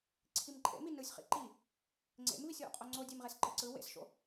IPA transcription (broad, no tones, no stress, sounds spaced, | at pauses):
ǀʰ i m ǃʼ ḛ m i n ɯ sʲ χ ḭ ǃ i | ŋ͡ǀ ḛ m v i sʲ w o̰ qʼ o ŋ͡ǀ o dʲ e m ʁ e s ǃ ɯ ǀ ɯ w ḛ s ʃ o̰